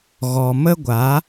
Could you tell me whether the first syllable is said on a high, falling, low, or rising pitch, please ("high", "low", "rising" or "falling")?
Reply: low